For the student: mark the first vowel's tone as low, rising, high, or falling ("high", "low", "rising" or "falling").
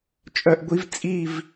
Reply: high